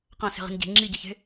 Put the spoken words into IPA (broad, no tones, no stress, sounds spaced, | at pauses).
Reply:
q ã s e̤ ʁ i̤ n ɟ e̤ ŋ͡ǁ i ɟ ʌ ç e̤